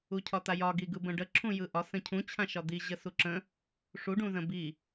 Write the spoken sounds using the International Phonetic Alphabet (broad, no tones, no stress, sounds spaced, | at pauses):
u cʰ ɒ t̪ a j ɒ ɡ i ɡ ɯ b ə̃ ɖ ə ǁʰ ũ j ɯ ʔ ɒ s ə̃ cʰ ũ t͡ɕʰ ã ʃ ɒ d̪ i ʑ ə s u ǁ ə̃ | ʂ u ɖ ũ z ə̃ b i